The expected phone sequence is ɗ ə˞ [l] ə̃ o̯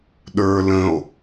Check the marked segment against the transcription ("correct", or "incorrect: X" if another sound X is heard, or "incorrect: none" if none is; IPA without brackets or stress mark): correct